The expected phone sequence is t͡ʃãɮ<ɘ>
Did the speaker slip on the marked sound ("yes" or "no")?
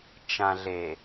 yes